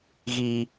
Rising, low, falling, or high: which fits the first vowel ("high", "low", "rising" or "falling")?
low